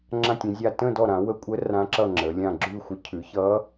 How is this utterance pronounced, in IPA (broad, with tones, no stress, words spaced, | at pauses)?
ŋ͡ǁã˥˧tʲə̃˨˦zʲa˥˧ tə̃˥˧ dɔ˥˧ɾã˨˦ wə˦˥kʷʼə˦˥ rã˦˥ǁʌ˥˧ ŋ͡ǁə˨˦lʲã˥˧ ɡ͡ǁʉ˥˧xʷə˦˥ cʰʉ˨˦çʌ˦˥